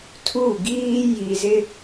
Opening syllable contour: falling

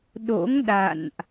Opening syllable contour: rising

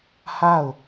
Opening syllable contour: falling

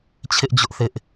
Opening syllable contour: high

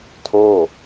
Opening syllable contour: falling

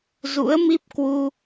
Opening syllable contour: rising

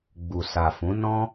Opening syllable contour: low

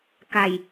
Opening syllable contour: low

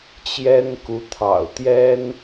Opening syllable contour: high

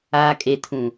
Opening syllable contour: low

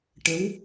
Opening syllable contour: rising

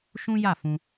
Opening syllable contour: high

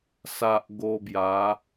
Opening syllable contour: low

